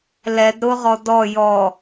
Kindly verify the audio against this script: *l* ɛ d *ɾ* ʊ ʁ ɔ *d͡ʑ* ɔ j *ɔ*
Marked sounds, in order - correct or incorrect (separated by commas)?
correct, correct, incorrect, correct